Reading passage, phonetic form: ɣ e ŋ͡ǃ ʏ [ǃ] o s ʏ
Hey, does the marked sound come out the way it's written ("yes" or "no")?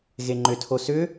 no